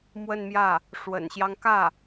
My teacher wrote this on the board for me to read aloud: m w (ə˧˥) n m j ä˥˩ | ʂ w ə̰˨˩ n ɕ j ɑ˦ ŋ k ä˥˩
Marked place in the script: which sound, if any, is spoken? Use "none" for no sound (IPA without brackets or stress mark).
ə˥˧